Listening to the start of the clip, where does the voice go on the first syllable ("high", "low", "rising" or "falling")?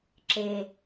low